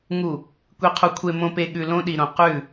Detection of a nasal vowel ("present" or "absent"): present